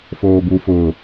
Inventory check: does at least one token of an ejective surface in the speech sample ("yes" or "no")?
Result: no